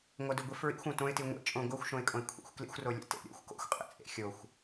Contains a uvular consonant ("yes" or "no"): yes